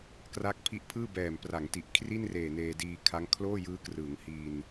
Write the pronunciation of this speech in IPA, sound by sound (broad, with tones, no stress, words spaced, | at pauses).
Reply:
kra˦˥k̚ pʰi˦˥ʔpʰɯː˥˩ bɛː˨˩mpra˩˦ŋ ti˨˩ʔkʰri˥˩nreː˨˩ neː˧diː˧kʰa˦˥ŋ kʰloː˥˩jɯː˦˥krɯ˩˦ŋ hi˧n